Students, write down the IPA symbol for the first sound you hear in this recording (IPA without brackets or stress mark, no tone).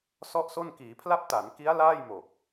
s